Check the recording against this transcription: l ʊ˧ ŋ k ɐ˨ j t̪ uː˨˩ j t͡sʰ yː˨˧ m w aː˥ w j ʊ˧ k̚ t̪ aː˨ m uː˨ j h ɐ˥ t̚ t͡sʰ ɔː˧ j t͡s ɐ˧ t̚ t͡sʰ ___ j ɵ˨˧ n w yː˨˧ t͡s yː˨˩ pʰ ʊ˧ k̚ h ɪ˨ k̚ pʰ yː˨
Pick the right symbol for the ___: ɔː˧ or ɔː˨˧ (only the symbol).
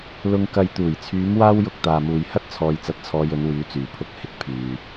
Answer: ɔː˧